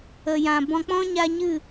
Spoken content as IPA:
ə˨ j ã˨ b ɔ̃˧ k͡p ɔ̃˦ ɲ a˧ ɲ ɨ˦˨

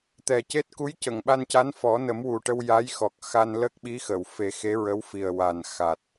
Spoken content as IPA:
t̪ ɛ˨˩ c e˦˥ t̚ k u˧˥ j c ə˨˩˨ ŋ ɓ a˧ n c a˧˥ n f ɔ˨˩˦ n ə˨˩˦ m w u˨˩ ʈ ə˧ w j a˧˥ j x ɔ˨˩ k̚ x a˧ n l ə˦˥ k̚ ɓ i˧˥ x ə˨˩˨ w f e˨˩˦ x e˧˥ ɹ ə˧˥ w f i˨˩ ə̯ w a˨˩ n x a˨˩ t̚

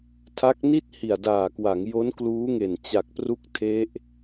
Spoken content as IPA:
tʰ a˦˥ k̚ n i˥˩ t̚ h i˨˩ a̯ d aː˨˩ k w a˩˦ ŋ j o˦˥ n k l uː˦˥ ŋ e˨˩ n t͡ɕ a˨˩ k̚ p r u˦˥ k̚ tʰ e˦˥ ʔ

